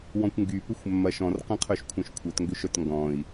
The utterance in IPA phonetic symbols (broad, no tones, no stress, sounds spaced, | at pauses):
w ɔ̃ kʷ ŋ ɡ y p ʏ xʷ mː ɐ ʃ ɔ̃ r q ɐ̃ qʰ œ ʃ kʷʰ œ̃ ʃ kʷʰ œ t ŋ ɡ ʏ ʃ œ t ŋ ɡ ɔ̃ i̯